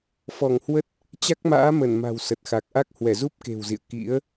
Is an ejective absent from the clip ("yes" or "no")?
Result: yes